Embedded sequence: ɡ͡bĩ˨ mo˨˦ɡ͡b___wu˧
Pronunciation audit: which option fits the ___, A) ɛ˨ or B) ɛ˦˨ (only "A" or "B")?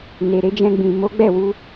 B